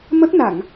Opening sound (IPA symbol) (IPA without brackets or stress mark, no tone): m